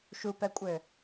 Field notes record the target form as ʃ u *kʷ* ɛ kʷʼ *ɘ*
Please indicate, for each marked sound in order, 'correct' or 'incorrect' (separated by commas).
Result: incorrect, correct